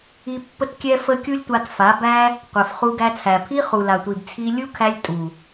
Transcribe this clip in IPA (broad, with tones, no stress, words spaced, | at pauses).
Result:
i˧ pːə˦tkʲɛ˦fə˦ kʲu˦lʲtʷa˧tfa˨˦bæ˦ | qʷɛ˨f χu˧ɡæ˧t͡sʰæ˨pʰi˦ χu˨la˨ tʷi˨bt͡sʰi˧lʲu˦kʰæ˧lʲ tʼu˨